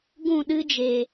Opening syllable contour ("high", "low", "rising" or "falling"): falling